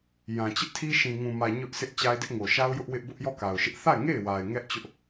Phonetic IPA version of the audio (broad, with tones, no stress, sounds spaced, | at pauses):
j ã˨ t͡ɕ ɪ˦ ʔ tʰ i˦ ʃ ĩ˨ ŋ ũ˨ m ä˨ ɲ ʊ˦ ʔ s ɪ˦ ʔ t͡ɕ a˦ ɪ̯ d ɪ˦ ʔ ŋ o˨ ʃ a˦ ʊ̯ j ʊ˦ ʔ w ɪ˦ ʔ b ʊ˦ ʔ j ɔ˦˨ k a˨ ʊ̯ ʃ ɪ˦ ʔ θ a˦˨ ɪ̯ ŋ e˦˨ ɪ̯ w a˨ ɪ̯ ŋ ɛ˦ ʔ t͡ɕ ʊ˦ ʔ